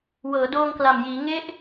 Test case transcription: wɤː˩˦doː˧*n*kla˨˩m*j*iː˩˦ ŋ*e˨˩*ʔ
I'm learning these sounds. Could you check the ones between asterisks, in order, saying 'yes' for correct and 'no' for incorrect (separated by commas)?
no, yes, no